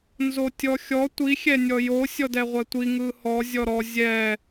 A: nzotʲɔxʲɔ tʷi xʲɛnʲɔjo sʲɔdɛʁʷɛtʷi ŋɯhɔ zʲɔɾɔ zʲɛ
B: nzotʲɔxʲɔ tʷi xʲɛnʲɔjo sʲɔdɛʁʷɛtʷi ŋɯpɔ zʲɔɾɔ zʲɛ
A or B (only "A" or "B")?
A